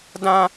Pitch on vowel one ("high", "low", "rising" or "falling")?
high